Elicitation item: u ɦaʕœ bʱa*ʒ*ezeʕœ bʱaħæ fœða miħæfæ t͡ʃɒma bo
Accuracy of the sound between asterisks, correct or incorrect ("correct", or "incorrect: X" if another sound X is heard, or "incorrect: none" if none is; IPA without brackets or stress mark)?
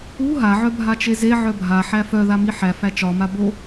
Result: incorrect: t͡ʃ